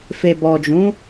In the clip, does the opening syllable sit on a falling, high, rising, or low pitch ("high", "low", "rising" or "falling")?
low